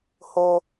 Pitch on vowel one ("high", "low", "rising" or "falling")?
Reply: high